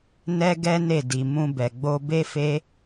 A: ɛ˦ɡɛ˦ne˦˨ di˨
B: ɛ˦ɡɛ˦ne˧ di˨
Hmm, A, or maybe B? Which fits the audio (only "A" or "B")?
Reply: A